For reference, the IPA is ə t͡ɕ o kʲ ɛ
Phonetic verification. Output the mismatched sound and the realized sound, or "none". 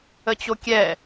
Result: none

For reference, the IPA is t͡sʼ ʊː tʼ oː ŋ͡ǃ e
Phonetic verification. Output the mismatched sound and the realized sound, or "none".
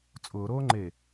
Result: tʼ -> ɾ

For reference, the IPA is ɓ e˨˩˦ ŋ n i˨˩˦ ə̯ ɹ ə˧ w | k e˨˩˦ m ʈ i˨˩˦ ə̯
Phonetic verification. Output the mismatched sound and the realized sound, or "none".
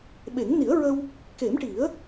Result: none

